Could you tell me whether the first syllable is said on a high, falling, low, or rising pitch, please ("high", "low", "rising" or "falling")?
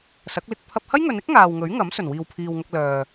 rising